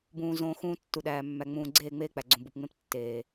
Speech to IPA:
bũː˨zõː˨ xũː˦ tːu˨ɗæː˨ mːæ˨ŋ͡mũː˨ ɡ͡ǀeː˦˨ŋ͡meː˦k͡pæ˨ ɡ͡ǀũ˨bu˨pŋ͡mẽ˦p tːeː˨

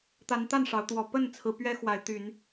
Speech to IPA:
t̪a˨˦nt̪a˥˨n ʂɑ˨˦ʊ̯t̪wɔ˨˦ pə˥˨nt͡sʰɹ̩˨˦ pɥɛ˦xwa˨˦ɪ̯ t̪y˨˦n

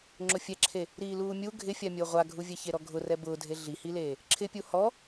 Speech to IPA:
ŋ͡ǁʊfʲɛǁʰe | ɾiːluːmʲu ɡʱɪfʲamʲʊː ʁʷaɡʱuvʲɛçe ɾɔɡʱʊrɛ bʊːdʱe ɮihileː | ǁʰɪpʲu hɔ

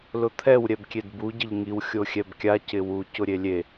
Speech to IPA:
lʊt̪ʰɛw ɾʲɛbkʲedbu ɟɪʎŋiw xʲoxʲɛbkʲa cɪwu cʊɾʲelʲe

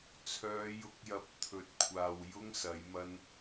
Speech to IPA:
t͡sʰœː˨˧jʊ˨˥k̚jɐ˨p̚ t̪ʰɵ˨˥t̚kʷʰaː˨wjʊ˥ŋ sɐ˨˥jmɐ˥n

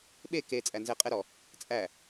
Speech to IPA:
ɓe ke t͡sʼænzɛ qʼɛɾɔ | t͡sʼæ

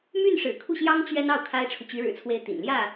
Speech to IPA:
my˥˩nʂɻ̩˨˩kʰu˥˩ɕjɑ˥ŋ t͡ɕɥɛ˥n ɑ˥˩ʊ̯ kʰa˥ɪ̯ʈ͡ʂʰu˨ t͡ɕy˧˥ɻɻ̩˨˩t͡sʰwe˧˥ɪ̯ t̪ḭ˨˩n ljä˥˩

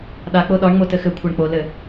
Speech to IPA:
ɗak͡po ɗɒɳŋ͡mo tɘxɘkʷʰɤɳ k͡polɘ

